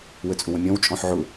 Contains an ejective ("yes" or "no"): yes